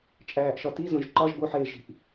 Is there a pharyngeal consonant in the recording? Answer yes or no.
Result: yes